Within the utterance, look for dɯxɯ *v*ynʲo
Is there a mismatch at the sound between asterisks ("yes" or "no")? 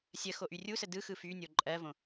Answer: yes